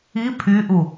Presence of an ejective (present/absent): absent